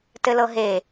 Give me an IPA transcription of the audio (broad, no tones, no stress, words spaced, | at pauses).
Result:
tɘlɤɦe